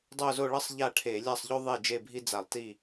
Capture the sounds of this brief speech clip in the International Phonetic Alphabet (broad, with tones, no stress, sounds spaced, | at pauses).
dˤ o˥˧ z o˥˧ ɭ ʌ˥ sˤ ʎ a˥˩ ʈʰ e˧˩˧ lʲ a˥˩ sˤ ʎ o˥ ðˤ e˥˩ d͡ʒ e˥˧ bʱ i˥ d͡z a˧˩˧ lˠ t i˥˩